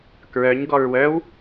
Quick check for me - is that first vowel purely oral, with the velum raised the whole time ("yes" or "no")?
yes